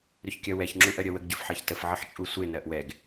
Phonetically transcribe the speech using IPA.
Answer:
ɾʏçkʲɜwɛç ŋ͡ǁuʔɜɾʲɜwəɡ ɟʏfħɜçtəf ʕəħt͡ʃʼusʷe nɜʔwɛɡ

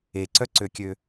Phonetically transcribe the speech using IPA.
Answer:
eǀœǀøkʲø

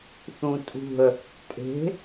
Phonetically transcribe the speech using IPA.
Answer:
θũtʼṳə̯ | tʼe̤

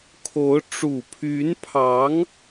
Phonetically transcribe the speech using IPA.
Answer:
kʰo˧˥ʊ̯ ʈ͡ʂu˨˩pʰy˧˥npʰɑ˧˥ŋ

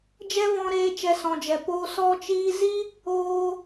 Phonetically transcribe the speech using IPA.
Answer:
d͡ʒɛ˦vɔ̃˧ɾeː˧ t͡ʃɛ˧sɔ̃˨d͡ʒɛ˨ poː˧ sɔ˧t͡ʃiː˧zi˦ | oː˦

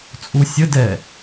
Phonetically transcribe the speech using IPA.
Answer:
t͡sʼusʲədɛ

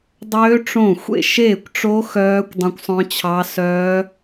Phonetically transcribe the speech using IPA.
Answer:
dˤøː˦˥ ʈ͡ʂõ˥˩ xʷḛ˥˩ʃeː˥˩kʷʈ͡ʂo˦˥ xœː˦˥kʷ dˤœ̃˦˥kʷsˤœ̃˦˥t͡ɕʰɑ˦˥ sœː˦˥

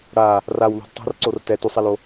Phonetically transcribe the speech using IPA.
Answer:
ɽa | raw lṳdtˤo̤r ǀortɛ tusˤɛlo

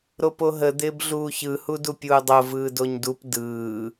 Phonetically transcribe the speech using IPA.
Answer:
ɾopoɦə d̪ɪːbɮuːçɯ hudupʲuːdˤo vɯːdoɲdup dɯː

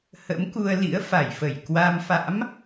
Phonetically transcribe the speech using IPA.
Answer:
hə̰˧˥m ku˧ə̯lḭ˧˥ə̯ fa˧˩jfə˧˩j kwa˧m fa̰˧˥m

